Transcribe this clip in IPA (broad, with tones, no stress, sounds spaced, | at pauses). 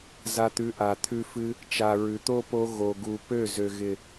z a˧ t̪ ʉ˨˦ ʔ a˨ t̪ʰ ʉ˧ f ɨ˧ | t͡ʃ a˨ ɹ ʉ˨ t̪ o˦ p o˧ ɣ o˨ ɡ u˨ p ø˦˨ z ø˨ ɣ ɪ˨